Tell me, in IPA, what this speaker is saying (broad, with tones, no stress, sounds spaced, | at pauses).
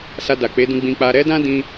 s a˧ d a˨ k͡p e˨˦ d ũ˧ ɡ͡b ĩ˧ k͡p a˧ ɾ ɛ˦ d ã˦ d ĩ˧